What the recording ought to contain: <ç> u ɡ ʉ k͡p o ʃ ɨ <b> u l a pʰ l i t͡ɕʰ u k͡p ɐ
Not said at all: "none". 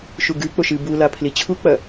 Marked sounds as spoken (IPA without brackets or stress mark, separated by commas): ʃ, b